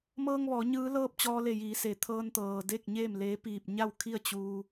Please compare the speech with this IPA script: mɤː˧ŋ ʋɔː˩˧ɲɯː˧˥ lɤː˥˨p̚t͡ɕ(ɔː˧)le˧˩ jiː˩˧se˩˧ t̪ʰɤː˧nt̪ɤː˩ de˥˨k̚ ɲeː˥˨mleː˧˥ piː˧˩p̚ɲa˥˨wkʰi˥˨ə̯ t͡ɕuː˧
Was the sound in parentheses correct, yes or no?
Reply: yes